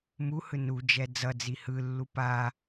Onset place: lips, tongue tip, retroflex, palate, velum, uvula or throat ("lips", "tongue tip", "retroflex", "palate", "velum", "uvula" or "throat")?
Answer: lips